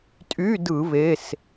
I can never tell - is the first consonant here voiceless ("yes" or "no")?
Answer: yes